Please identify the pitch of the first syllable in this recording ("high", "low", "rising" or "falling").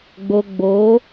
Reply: low